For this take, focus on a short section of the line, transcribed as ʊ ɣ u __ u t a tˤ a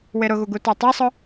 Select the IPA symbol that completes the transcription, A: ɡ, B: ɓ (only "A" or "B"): A